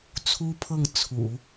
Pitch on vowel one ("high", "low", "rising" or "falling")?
high